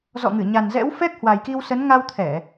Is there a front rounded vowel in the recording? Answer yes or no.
no